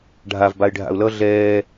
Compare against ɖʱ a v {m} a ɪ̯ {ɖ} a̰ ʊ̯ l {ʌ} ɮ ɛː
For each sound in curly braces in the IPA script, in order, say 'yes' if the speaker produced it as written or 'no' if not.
no, no, yes

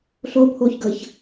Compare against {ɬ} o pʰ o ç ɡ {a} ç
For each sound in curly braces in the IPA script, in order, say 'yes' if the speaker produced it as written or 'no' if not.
yes, no

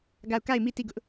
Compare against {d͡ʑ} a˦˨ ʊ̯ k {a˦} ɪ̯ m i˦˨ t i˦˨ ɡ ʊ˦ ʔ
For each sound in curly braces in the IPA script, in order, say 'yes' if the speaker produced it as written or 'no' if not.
no, no

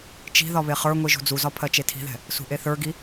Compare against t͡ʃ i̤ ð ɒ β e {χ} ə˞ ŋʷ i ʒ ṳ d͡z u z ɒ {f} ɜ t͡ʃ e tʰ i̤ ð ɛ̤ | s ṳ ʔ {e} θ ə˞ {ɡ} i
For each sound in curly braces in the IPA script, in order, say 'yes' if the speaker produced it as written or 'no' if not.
yes, no, yes, yes

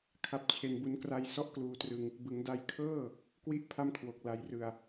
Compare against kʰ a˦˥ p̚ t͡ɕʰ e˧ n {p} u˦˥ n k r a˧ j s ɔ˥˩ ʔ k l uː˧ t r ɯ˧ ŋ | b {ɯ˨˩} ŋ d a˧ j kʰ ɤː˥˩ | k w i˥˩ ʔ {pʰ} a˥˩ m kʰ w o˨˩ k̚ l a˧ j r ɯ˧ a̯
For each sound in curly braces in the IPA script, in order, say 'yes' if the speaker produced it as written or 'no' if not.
no, no, yes

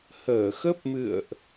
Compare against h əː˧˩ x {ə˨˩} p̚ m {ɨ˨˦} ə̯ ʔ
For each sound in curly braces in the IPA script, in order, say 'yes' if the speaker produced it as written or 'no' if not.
no, no

